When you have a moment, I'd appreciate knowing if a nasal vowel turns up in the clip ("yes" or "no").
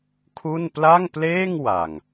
no